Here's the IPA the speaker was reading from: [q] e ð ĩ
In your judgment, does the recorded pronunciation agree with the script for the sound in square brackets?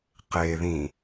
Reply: yes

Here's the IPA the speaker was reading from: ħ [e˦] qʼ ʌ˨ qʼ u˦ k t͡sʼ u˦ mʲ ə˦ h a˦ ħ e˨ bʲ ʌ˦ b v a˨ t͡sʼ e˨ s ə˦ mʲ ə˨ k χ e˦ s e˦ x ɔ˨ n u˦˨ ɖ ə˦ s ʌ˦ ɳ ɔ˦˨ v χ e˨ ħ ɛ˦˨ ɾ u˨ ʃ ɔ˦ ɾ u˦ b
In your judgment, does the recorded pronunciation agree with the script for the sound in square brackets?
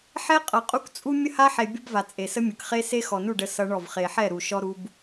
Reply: no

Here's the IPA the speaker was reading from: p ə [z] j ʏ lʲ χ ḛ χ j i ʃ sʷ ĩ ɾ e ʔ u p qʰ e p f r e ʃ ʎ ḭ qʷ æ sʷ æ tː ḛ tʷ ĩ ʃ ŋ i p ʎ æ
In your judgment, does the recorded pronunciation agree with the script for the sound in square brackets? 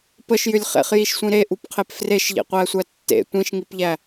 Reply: no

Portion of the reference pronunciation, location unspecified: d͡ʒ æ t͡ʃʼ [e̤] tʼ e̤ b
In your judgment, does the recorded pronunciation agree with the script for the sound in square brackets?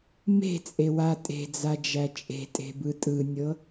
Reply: yes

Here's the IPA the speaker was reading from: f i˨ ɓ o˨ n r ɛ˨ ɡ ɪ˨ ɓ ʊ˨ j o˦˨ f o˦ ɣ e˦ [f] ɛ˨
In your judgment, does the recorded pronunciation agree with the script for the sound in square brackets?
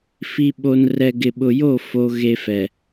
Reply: yes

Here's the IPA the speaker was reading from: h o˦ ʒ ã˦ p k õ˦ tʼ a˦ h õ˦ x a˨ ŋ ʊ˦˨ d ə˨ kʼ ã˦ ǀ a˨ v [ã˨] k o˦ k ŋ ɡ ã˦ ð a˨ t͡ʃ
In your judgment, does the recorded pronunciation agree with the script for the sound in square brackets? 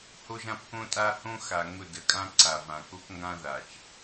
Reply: yes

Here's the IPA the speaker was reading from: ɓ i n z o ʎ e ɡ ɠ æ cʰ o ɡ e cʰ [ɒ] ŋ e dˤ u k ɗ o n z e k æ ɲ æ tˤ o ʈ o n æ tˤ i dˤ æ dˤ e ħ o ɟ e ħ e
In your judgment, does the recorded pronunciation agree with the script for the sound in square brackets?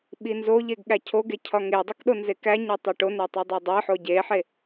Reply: yes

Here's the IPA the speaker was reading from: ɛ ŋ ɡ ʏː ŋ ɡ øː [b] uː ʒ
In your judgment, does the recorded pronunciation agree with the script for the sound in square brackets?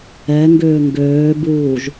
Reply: yes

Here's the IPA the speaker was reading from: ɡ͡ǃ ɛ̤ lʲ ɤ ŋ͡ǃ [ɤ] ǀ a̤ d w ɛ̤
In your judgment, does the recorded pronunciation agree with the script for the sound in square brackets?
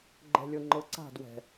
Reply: yes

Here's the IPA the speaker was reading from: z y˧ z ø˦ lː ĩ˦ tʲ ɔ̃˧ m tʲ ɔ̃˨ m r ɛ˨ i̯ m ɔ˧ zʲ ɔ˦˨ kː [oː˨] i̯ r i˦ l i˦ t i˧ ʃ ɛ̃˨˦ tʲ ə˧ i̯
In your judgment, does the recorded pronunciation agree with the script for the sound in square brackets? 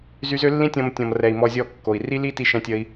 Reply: no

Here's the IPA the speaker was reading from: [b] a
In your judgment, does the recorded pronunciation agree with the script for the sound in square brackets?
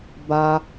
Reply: yes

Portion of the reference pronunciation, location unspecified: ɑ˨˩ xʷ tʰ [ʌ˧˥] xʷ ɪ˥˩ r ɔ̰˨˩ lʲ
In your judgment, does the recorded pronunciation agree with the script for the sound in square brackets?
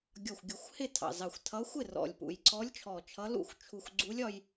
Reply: yes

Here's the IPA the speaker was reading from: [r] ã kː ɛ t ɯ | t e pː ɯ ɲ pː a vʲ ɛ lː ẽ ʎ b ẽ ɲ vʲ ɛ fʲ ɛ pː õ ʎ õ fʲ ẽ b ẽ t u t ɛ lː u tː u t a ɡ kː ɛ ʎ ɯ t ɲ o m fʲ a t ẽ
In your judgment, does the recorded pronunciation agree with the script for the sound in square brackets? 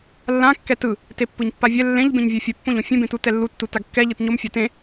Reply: no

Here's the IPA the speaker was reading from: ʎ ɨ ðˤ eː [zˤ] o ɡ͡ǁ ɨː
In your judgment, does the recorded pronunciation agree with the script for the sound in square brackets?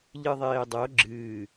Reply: no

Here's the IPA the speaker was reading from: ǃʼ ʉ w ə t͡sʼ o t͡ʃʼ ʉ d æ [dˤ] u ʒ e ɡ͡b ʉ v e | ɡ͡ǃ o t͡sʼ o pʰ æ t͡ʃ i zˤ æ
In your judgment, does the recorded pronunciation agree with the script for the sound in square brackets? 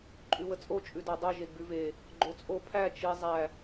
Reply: yes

